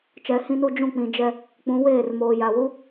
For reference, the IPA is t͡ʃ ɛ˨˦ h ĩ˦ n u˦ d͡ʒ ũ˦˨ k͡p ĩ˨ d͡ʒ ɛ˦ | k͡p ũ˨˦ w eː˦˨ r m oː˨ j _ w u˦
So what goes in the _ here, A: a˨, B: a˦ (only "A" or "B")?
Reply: A